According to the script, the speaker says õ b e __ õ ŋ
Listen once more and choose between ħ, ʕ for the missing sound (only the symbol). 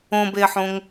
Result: ħ